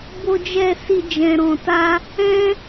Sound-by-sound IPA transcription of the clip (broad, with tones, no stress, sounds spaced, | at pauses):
b o˧ d͡ʒ ɛ˧ s i˧ d͡ʒ ɛ̃˧ ɾ ɔ̃˧ t a˦ | ɛ̃˦